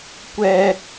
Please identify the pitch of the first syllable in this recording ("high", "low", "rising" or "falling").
high